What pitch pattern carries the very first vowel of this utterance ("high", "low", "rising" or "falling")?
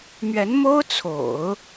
rising